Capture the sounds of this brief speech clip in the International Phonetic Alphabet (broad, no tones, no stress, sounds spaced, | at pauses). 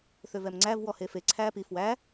θ ø v ɛ m ŋ͡ǀ æ v w ɔ h e f e ǀʰ æː p i f w æ